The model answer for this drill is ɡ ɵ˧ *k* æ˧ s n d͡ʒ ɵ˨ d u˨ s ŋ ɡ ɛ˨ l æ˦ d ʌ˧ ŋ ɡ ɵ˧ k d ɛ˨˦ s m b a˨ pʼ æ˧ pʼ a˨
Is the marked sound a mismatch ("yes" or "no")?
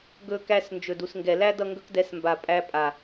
no